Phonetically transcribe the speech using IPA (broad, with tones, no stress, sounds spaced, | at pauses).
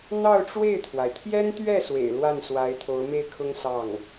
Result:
n̪ ɑ˥˧ ʊ̯ ʈ͡ʂ w e˥˩ ɪ̯ t̪ʰ w a˩ ɪ̯ t̪ʰ j ɛ˥ n t̪ ɥ ɛ˥˩ s w ḛ˨˩ ɪ̯ l w a˥˩ n s w a˧˥ ɪ̯ t̪ʰ o˧˥ ʊ̯ m e˥˩ ɪ̯ kʰ ʊ˥ ŋ s ɑ˥˩ ŋ